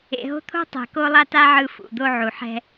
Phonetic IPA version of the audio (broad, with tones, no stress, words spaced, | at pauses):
ḛ˨ɦo̤˦t̪ʰo̤˦tˤɛ̤˨ ko˦lˠa˦ta˦ ʕɯ˦fṵ˨d̪o˦ ʕu˨ħɛ̤˦